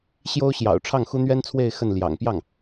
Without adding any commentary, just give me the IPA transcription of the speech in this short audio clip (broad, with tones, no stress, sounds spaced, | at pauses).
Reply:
ɕ j o˥ ʊ̯ ɕ j ɑ̰˨˩ ʊ̯ ʈ͡ʂʰ ɑ˥˩ ŋ x u˥ n̪ ɥ ɛ˥ n t͡sʰ w e˥˧ ɪ̯ x ə˥˩ n l j ɑ̰˨˩ ŋ p j ɑ˥˩ ŋ